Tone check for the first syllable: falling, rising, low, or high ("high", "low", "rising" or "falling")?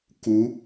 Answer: rising